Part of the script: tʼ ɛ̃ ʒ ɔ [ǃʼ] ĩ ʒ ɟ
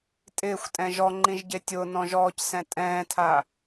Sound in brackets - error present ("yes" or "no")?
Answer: yes